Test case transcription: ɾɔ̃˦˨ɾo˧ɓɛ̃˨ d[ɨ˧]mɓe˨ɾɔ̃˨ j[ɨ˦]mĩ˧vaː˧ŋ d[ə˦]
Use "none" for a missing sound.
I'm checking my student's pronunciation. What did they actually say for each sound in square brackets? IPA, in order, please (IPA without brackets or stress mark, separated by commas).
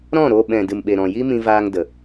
ɨ˨, i˦, ə˨